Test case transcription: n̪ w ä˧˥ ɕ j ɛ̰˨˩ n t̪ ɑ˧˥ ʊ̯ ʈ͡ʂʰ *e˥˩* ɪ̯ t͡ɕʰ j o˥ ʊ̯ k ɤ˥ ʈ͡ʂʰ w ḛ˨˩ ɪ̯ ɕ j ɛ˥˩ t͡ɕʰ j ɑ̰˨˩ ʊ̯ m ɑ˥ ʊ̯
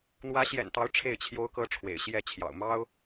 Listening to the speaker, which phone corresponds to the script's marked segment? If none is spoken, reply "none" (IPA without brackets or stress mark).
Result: e˥˩